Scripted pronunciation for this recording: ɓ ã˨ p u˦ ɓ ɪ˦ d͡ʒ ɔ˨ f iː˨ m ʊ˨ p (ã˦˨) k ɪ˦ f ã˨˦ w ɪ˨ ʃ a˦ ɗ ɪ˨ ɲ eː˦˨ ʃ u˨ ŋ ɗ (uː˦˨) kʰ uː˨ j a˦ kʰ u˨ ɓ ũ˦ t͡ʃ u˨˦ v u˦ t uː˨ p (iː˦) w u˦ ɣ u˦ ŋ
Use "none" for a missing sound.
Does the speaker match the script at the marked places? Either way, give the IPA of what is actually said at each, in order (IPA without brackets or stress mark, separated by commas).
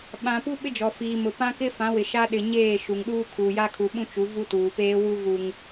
ã˦, uː˦, eː˦